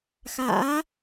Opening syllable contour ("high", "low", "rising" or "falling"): rising